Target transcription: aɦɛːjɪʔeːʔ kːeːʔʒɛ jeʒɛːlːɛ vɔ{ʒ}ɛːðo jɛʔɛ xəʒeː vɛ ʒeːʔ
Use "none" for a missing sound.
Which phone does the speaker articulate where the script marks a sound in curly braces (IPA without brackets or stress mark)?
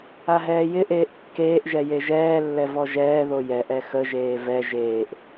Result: ʒ